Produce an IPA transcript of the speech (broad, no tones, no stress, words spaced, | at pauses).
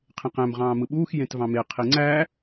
qʰẽqæ̃m ʁɑ̃ːmɯɓuːx jẽtvɑ̃me qʰiŋ͡ǀæː